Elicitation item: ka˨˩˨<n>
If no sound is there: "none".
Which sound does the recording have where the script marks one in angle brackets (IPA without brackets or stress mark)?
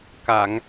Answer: ŋ